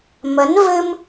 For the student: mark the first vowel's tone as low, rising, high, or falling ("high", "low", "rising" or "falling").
rising